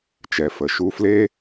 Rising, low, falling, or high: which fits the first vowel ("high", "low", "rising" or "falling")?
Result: low